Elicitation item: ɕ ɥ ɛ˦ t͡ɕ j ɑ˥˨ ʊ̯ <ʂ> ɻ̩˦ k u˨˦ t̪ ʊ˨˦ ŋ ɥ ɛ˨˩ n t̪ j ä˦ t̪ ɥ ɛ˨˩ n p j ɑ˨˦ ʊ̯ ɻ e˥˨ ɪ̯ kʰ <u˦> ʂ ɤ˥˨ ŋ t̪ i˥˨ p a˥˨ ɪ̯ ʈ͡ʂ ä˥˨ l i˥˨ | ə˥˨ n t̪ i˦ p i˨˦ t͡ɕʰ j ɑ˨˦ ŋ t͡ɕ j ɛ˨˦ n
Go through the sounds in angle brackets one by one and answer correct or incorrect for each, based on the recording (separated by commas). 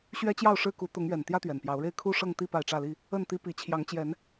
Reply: correct, incorrect